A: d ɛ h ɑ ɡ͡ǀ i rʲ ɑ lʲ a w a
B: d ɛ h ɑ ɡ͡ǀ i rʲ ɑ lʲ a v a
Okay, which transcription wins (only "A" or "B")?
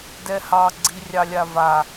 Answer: B